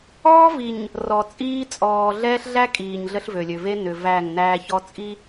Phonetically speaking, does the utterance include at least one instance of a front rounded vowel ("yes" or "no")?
yes